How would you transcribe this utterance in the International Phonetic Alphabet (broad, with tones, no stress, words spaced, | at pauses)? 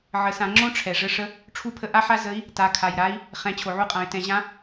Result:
ʕə˩˧sã˩˧ŋ͡ǁõ˥ ʈ͡ʂʰɛ˩ʐə˧ʂə˧˥ | ʈ͡ʂʰu˧˥pʰə˧ʔa˥ħa˥ zə˧˥i̯ | ta˩˧kʰa˩jɾa˧˥i̯ | χɛ̃˩˧ t͡ɕʰo˩ʕu˧qʼã˩˧y̯tɛ̃˩˧ ʑã˧˥